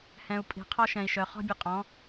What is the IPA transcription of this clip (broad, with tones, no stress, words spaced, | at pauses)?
hɛ̃˨u̯pʼi̤˨qʰɔ˦ʃɛ̃˨i̯ ʃœ˨χɔ̤˦bʲɯ˨qʼɔ̃˨˦